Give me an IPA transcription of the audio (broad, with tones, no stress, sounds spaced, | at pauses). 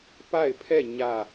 p a˦˨ ɪ̯ pʰ ɛ˦˨ ɲ ä˦˨